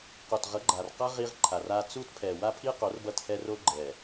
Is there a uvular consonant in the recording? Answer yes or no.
yes